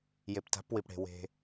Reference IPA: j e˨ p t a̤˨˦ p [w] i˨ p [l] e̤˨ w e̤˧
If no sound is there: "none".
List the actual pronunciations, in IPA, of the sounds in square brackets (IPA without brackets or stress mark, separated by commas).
w, ɽ